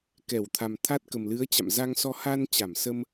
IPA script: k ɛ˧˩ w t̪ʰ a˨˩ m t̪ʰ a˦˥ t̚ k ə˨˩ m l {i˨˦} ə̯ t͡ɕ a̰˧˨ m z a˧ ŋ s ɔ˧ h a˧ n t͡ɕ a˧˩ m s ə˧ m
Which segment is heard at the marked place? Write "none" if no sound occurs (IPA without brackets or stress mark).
ɨ˨˦